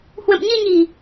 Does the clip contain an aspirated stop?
no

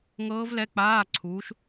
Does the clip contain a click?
yes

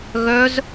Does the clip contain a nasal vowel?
no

